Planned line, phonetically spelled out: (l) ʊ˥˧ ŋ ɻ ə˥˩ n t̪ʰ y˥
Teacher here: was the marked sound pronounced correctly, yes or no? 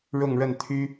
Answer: no